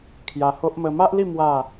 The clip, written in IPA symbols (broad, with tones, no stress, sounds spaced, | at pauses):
kʰ j a˧ h o˦ ʔ m ə˧ m a˦ ʔ l i˥˧ m w a˥˧